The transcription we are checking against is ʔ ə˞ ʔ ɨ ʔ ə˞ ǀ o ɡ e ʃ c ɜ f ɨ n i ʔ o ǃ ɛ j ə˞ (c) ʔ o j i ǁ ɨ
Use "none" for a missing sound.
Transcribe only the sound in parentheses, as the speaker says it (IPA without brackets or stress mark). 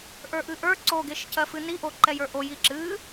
none